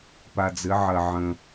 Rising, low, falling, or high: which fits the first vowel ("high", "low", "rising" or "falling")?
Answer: low